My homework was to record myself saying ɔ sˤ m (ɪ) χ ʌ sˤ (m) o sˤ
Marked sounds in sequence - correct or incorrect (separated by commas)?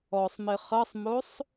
correct, correct